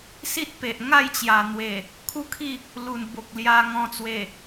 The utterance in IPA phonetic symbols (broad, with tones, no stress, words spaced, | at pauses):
si˦t̚ pe˨ʔ ŋa˥˧jt͡ɕja˨˩n̪we˨˩ | kʰu˦kʰi˥˧ | lu˨˩n bo˨k̚lja˧ŋɔ̃˧ t͡swe˨˩